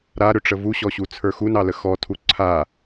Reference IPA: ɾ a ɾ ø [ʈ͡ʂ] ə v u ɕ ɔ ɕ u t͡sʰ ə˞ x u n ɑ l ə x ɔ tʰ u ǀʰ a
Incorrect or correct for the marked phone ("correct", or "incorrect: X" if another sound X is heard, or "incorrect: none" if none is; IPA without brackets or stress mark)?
correct